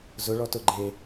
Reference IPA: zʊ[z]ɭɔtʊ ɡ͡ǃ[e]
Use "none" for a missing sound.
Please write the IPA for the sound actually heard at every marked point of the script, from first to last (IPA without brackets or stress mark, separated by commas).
none, e